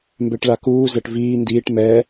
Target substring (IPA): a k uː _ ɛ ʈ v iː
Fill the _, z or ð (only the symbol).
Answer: z